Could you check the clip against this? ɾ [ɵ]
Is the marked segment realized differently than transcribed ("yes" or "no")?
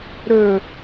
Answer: no